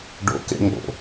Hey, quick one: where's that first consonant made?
retroflex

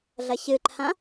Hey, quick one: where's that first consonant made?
tongue tip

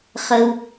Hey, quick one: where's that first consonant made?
uvula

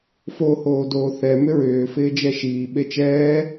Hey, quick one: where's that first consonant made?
lips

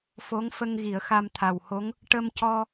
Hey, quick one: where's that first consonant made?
lips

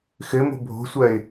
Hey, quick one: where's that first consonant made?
velum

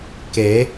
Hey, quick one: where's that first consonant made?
velum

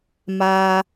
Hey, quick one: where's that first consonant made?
lips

